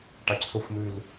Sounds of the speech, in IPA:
ʈɑcθoxʷmʉl

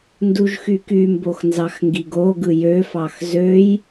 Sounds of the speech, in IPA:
nduʒxykymbox nzɑxŋɡiɡoɡɯ jøfɑx zøj

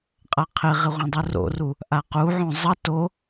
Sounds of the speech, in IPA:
qʼaqʰɪʁɪ ʁʷãdˤuro̰ru | ʔaquʕõ zˤʌ to

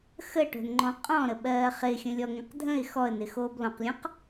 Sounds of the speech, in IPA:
xəʈo̤nŋ͡ǃɔ̃ qʼɔ̃ɾə ɓɜːχɪ xʲə̃lʲɔŋə̃qdʱə̃ɪ̯ xɔə̯nɪxoːb lɔ̃qlʲɔ̃q

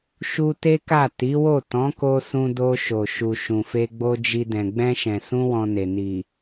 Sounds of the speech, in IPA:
ʃu˧ te˦ka˦˨ ti˨˦wo˦˨ tɔ̃˨˦ko˧sũ˧do˧ ʃo˨ ʃu˨ ʃũ˨fe˧ɡ͡bo˧ d͡ʒi˧dɛ̃˨ ɡ͡bɛ̃˧ʃɛ̃˨sũ˧ wɔ̃˧ne˨ ni˨

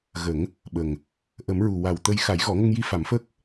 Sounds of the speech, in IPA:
ɣə˨˩˦ŋ | ɓə˨˩ŋ | ʔə˨˩˦mɹu˨˩wa˨˩wt̪ə˧j xa˨˩˦jɣɔ˨˩˦ŋə˧ŋji˧ fa˨˩˦mfəː˦˥k̚

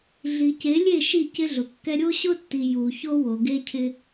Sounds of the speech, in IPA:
ɮi˨ ce˨˦lʲe˦˨ ʃi˦˨cɪ˦ɮʊ˨kːɛ˦ ɾʲo˦ɕʊ˦tːi˨ ju˨ço˦ wo˨ɡe˦cʰɪ˦

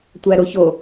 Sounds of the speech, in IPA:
tʷæɾoço

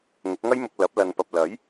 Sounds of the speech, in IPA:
ŋʊ˨˥k̚ŋɐ˥jmʊ˧k̚ lɐ˨˥p̚ lɐ˨npɐ˨p̚ lɐ˨˥j

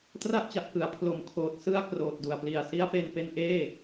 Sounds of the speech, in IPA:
tra˥˩ʔt͡ɕa˨˩ʔ kɯ˩˦a̯ pʰlo˨˩mkʰoː˨˩t̚ sɯ˧a̯ kroː˨˩t̚du˨˩a̯pli˨˩a̯ si˧a̯pe˧npe˧nʔeː˥˩

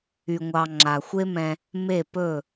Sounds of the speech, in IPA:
y˧ŋʷɑ˧ ŋ͡ǁa˨xʷe˦mɛ̃˧ | me˦˨pɵ˦˨

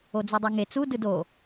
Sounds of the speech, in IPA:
od͡zudˤeŋe t͡su dɯdo

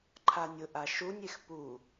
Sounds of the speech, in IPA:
ǃʰanʲʊʔa ʃunʲex pu

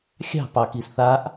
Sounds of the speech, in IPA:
xʲɑ̤ pɑkis θaʔ

